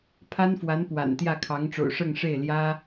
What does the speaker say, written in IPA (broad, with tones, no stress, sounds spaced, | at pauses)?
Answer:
pʰ a˥ n f w a˧˥ n p w a̰˨˩ n t̪ j ä˥˩ kʰ ɑ˧˥ ŋ ʈ͡ʂ o̰˨˩ ʊ̯ ʂ ɤ˥˧ ŋ ʂ e˥˩ ɪ̯ l j ä˥